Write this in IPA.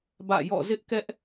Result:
bä̰˦˨jɔ̰˦˨ zɪ˦ʔ kɛ˦ʔ

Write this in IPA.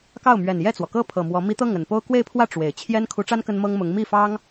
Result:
kɑ˥˩ʊ̯mɥɛ˨˩n jɛ˥˩t͡swɔ˩kɤ˥ pʰɤ˨˩mwɔ˧˥mi˥ t̪ɤ˥˩ŋə˨˩npo˥ʊ̯ kwe˥˧ɪ̯pʰwä˥˩ ʈ͡ʂwe˨˩ɪ̯ t͡ɕʰjɛ˥n kʰu˧˥ʈ͡ʂa˥n kə˥nmɤ˥ŋmʊ˧˥ŋ mi˥˩fɑ˥ŋ

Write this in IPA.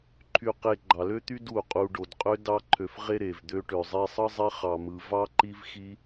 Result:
ǃʰy˧ qe˧ ɡ͡ǃɑ˨lø˦t̪y˦ du˦˨qʼu˧ ɖo˨dqʼø˦ dɑ˧ǃʰø˨fʁe˧ ɾe˨vd̪ø˦ʈø˧zˤi˦ sˤɯ˦zˤe˦ χɑ˧mɯ˧ vɑ˦ǃi˦vxi˦

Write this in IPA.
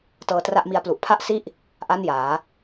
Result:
tɤː˧tra˥˩ʔmi˧a̯ plu˨˩ʔpʰa˥˩ʔsi˥˩ʔ | ʔa˥˩njaː˩˦

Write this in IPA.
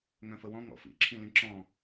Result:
ŋœ̃fəwɔ̃ ŋɔ̰fḭ ǁʰĩlĩǁɔ̃

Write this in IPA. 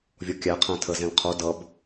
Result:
vʲɔkʲæqʰæ̃ tʰəzẽl qʰo dʌb

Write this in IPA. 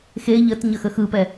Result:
xe ʎət ɲəxəxɯpɛ

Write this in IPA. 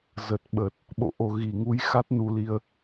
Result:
zə˨˩t̚ɓə˨˩t̚ | ɓo̰˧˨ʔo˨˩ ɣi˨˩ŋu˨˦j xa˦˥t̚nu˧li˧ə̯

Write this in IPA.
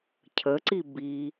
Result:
cʰəǀi bi

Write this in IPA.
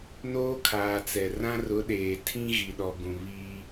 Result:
noː˦kʰaː˨t͡sɛ˨ rã˦rʊ˨˦ ɗeː˨tʰĩ˦ ɣi˨ɗɔ˨ɡũ˨ βiː˦

